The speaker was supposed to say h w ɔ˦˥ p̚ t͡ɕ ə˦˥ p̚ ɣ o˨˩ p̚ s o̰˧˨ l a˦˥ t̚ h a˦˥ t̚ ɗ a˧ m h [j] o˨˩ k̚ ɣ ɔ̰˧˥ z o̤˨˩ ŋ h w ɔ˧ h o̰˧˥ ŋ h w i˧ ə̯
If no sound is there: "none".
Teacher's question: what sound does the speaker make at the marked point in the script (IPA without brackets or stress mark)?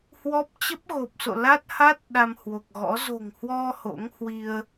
w